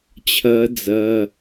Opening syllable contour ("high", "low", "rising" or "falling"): rising